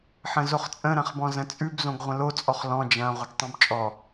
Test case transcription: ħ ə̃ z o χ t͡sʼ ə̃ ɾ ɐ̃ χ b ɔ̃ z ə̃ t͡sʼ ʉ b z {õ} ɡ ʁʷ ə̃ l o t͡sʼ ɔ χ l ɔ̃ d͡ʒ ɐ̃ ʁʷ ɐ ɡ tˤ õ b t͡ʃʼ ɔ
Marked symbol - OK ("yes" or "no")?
yes